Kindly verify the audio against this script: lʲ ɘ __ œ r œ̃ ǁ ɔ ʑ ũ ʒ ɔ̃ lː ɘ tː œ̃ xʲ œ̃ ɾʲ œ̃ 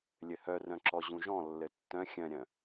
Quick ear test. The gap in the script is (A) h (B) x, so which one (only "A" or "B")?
A